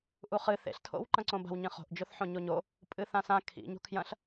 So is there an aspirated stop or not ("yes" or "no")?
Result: yes